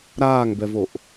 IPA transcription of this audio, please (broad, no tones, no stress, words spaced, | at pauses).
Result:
ɾaːŋbɛvoʔ